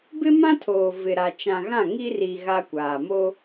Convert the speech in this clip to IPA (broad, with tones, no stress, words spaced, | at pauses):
bɪ˦mã˦tʰoː˨ vɪ˨ɾa˨ t͡ʃã˨ɣã˦˨ ŋi˦ri˨ ɣa˦kʷaː˨ mo˦